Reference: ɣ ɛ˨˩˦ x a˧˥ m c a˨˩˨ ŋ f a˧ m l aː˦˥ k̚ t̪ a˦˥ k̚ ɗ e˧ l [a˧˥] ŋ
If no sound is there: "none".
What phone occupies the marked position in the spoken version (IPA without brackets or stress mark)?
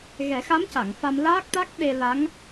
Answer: a˧˥